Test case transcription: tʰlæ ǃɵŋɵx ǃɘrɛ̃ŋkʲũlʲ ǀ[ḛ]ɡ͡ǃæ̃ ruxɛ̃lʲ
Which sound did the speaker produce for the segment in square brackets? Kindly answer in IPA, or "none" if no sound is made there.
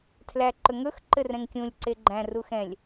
e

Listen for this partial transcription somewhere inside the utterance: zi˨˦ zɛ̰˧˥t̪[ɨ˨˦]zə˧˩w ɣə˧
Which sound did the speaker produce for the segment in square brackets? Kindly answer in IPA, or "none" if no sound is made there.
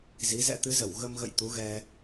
ɨ˨˦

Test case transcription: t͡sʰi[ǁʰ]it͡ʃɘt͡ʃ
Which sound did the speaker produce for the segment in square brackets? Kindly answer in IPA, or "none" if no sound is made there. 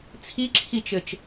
ǁʰ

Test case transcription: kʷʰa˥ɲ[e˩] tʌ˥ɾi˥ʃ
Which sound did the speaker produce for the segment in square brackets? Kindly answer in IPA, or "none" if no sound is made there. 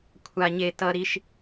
e˥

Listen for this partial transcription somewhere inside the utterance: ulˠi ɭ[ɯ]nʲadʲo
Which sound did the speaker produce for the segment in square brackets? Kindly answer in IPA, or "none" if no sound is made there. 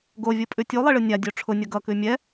ɯ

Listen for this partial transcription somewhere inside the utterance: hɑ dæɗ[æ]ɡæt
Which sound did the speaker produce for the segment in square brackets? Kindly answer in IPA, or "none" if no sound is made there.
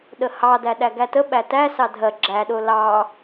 æ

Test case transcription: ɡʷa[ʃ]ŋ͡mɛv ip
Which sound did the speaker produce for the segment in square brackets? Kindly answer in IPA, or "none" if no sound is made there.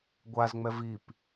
z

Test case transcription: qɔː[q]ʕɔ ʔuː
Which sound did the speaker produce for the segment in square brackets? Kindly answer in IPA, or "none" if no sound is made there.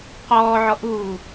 none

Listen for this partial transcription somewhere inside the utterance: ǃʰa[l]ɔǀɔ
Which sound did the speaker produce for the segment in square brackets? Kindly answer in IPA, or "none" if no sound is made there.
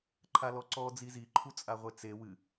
l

